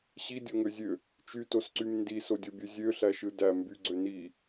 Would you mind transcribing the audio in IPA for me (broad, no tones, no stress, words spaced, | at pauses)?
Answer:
ɕidʲoŋøzʲø | t͡ʃytosǀym ndisodʲobʲø zʲøɬæʃɯ dæ mbyɡ͡ǀø ni